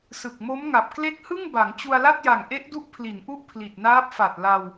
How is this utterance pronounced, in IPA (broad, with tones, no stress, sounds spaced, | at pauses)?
s ɯ˨˩ k̚ m o˦˥ m ŋ a˨˩ p̚ k l e˦˥ k̚ h ɯ˥˩ ŋ b a˩˦ ŋ t͡ɕ u˧ a̯ l a˥˩ t̚ j a˨˩ ŋ ʔ e˦˥ ʔ d u˦˥ ʔ pʰ l i˩˦ n ʔ u˥˩ ʔ pʰ l i˨˩ t̚ n aː˦˥ p̚ f a˨˩ t̚ l a˧ w